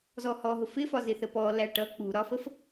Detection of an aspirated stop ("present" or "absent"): absent